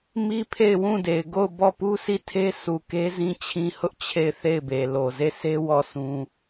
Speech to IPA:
m i˦ pʰ e˦˨ ɪ̯ w ũ˦˨ d e˨ ɪ̯ ɡ o˦˨ ʊ̯ b ɔ˦˨ p u˦ sʰ i˦˨ tʰ e˦ s u˨ k e˦ z ĩ˦ t͡ɕʰ ĩ˦ h ʊ˦ ʔ t͡ɕʰ e˦˨ ɪ̯ θ e˦˨ ɪ̯ b e˨ l o˨ z e˦˨ sʰ e˦ w ɔ˦˨ s ũ˦

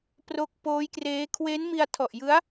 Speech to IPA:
p r o˦˥ k̚ p oː˦˥ j k r eː˦˥ kʰ w e˦˥ n m i˧ a̯ tʰ ɔ˨˩ ʔ j ɯ˦˥ a̯

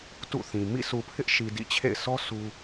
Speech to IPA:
t ṵ˦˨ θ ĩ˨ m ḭ˦˨ s u˨ pʰ ɪ˦ ʔ ʃ i˨ d ḭ˦˨ t͡ɕʰ ḛ˦˨ ɪ̯ sʰ ɔ˦ s u˦

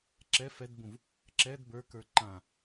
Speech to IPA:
ǁ ɛ f ɛ d b ũ v | ǁ ɛ d b ə˞ k ə˞ ǃ ã

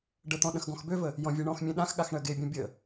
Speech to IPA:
ɖ ə t̪ ɔ̃ ɗ ə̃ x ɡ ɔ̃ x b ø v ə | j ɔ̃ vʲ e ɳ ɔ̃ x mʲ ẽ ɗ ã x ɠ a x ɳ ɜ ɡ e bʲ ɔ̃ bʲ ə

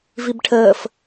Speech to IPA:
v i b ʈʰ əː f

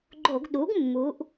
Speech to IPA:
ɡ͡ǃ o˧˩˧ ɡ ɗ u˩˥ ɡ mː u˩˧ ʔ

